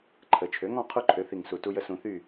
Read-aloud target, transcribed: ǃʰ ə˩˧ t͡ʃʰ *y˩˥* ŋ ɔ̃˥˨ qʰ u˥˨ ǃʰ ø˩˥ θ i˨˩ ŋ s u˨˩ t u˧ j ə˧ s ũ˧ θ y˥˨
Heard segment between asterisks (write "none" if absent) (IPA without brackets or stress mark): ø˩˥